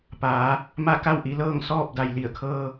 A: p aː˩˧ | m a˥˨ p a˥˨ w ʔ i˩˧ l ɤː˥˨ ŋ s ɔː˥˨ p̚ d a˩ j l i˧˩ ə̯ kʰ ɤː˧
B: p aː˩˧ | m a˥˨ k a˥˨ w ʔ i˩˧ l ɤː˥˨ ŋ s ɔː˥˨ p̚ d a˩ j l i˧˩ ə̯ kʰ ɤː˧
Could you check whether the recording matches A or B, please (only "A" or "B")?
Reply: B